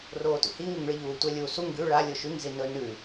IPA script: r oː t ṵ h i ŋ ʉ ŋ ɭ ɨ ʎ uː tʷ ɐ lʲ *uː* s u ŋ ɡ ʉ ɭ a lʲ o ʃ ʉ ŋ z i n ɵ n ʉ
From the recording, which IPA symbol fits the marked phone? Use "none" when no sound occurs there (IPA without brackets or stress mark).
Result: uː